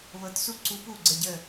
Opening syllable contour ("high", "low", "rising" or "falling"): rising